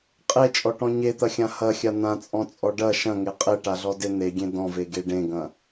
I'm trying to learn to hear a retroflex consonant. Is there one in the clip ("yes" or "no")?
yes